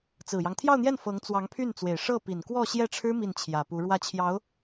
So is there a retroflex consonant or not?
yes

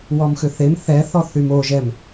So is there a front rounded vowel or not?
yes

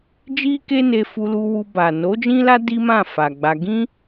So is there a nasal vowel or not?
yes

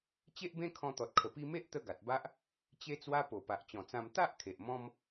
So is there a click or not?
no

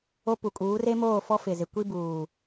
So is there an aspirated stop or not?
no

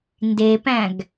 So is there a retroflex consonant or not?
no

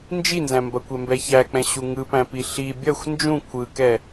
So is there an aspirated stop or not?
yes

